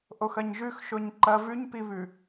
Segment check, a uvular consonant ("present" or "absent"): absent